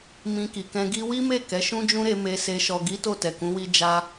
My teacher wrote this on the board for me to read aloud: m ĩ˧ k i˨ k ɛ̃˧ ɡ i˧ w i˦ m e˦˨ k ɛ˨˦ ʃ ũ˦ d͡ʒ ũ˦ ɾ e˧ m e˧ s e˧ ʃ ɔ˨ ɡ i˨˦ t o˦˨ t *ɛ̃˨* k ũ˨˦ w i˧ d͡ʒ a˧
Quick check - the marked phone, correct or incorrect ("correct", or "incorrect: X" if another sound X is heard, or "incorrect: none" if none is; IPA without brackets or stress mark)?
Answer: incorrect: ɛ˨